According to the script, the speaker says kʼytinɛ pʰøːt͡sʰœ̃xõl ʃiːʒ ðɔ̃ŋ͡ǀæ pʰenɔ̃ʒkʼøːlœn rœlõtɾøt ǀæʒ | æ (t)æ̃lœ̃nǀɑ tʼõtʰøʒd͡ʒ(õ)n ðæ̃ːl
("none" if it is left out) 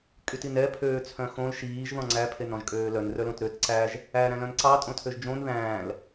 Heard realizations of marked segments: ɾ, õ

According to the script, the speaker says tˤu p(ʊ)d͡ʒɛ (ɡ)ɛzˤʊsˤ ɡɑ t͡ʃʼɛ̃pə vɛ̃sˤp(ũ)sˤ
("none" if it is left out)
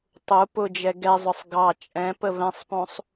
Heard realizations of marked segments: ʊ, ɡ, ũ

